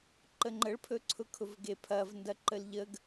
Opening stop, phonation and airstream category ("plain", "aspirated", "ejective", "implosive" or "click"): click